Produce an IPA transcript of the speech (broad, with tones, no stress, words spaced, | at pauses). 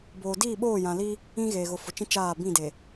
boː˨diː˦˨ ɓoː˦˨jã˨li˦ | ĩ˦ɣeː˨ɣʊ˨ fʊ˨t͡ʃĩ˦ t͡ʃaː˦˨ bĩ˦˨de˨